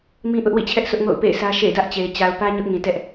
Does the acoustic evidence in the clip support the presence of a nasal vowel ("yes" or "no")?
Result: yes